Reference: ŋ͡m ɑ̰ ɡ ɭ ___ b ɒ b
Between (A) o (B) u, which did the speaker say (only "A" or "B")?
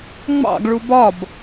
B